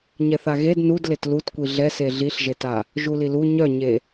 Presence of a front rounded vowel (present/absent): present